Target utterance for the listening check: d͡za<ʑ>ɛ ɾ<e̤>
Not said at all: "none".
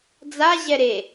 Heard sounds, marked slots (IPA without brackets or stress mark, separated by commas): ʑ, e